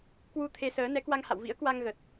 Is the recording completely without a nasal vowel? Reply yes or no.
yes